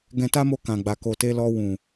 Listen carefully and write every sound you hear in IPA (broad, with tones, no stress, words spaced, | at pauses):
ɡɛ̃˧ta˦mo˧ kã˨ɡ͡ba˨ ko˨te˧lɔ˧ wũ˨